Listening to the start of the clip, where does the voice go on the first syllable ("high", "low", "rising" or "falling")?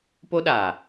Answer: high